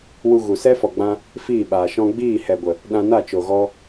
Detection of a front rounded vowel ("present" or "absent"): absent